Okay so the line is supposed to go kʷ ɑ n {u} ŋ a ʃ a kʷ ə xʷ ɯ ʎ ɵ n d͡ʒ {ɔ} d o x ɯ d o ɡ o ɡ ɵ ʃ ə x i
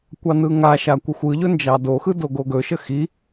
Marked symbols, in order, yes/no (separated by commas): no, no